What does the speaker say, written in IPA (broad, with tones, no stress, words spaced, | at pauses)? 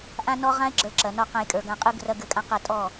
ʔã˦nɔ˦ ʁã˦e̯ɡ͡ǁə˞˨˦ ǁɐ˨nɔ˧ qã˧jkʼə˞˨ɡã˧qʼɯ˦ ɡrɐ˦ɡɘ˦˨kʼã˦ qɐ˦˨tʼɔ˦˨